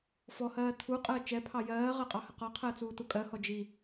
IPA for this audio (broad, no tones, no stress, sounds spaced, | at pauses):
f ɔ h ɜː tʰ u qʼ əː t͡ʃ ɛ pʰ ɑ j ɜː ʁ ɜ qʼ ɑ h ə q ɒ qʰ əː t͡s uː t u kʼ ɜ h ɔ d͡ʒ i